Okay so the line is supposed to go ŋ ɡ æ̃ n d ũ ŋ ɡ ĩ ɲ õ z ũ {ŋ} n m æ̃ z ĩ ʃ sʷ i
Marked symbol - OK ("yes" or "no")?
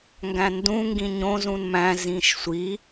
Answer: no